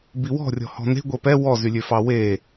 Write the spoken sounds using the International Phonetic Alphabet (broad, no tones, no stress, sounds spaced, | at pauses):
b i w ɔ̤ rʲ ɔ̤ h ɔ̤ n e̤ ɡʷ ɛ p ɛ w ɔ z y lʲ ø f ɑ w e